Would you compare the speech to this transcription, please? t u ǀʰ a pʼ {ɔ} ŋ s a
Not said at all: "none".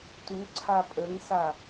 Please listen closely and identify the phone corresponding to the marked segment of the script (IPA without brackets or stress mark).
ə